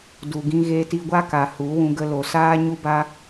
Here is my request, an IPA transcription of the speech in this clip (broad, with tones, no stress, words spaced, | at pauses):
du˨ɡĩ˧ ɣe˧ti˧ ɡʷa˦ka˨ hu˨˦ wũ˧ɡə˧lo˨ saː˦ɲu˦ba˦